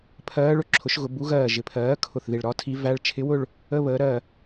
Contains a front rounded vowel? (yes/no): no